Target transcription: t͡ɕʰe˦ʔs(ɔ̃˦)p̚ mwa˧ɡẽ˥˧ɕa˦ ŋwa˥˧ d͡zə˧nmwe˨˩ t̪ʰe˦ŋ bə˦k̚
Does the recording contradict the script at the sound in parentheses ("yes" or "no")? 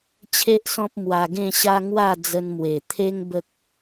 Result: no